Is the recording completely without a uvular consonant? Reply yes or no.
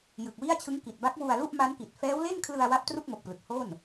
yes